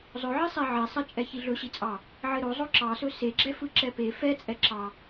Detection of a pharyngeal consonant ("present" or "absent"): present